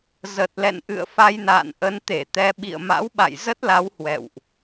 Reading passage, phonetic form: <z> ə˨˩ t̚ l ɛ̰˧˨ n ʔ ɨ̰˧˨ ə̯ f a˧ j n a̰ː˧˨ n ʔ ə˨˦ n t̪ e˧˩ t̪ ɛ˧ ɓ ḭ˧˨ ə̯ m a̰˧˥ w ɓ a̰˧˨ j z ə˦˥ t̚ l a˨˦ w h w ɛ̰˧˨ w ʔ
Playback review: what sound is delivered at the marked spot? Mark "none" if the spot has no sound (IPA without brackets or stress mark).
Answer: z